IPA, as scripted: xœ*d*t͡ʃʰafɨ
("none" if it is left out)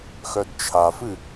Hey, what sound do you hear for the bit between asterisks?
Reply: d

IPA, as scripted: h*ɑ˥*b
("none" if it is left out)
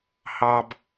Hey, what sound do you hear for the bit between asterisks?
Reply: ɑ˥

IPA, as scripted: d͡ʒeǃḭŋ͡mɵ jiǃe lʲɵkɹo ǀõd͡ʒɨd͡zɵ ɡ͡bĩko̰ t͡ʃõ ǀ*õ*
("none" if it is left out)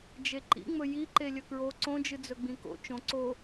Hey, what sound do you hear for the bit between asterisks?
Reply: o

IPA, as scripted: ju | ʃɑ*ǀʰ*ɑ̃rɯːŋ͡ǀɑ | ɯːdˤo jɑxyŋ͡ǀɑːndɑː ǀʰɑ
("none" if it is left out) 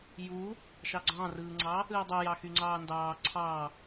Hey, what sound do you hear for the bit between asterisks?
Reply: ɡ͡ǀ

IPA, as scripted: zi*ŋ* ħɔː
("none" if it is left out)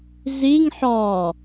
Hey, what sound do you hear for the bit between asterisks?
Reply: ŋ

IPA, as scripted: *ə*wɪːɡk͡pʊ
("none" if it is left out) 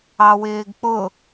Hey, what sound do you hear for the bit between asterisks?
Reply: ɑ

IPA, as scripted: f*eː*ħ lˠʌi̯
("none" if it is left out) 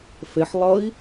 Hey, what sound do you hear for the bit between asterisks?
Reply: e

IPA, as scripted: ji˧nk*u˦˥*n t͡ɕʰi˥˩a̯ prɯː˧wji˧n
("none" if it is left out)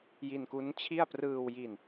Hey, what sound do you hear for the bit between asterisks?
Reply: u˦˥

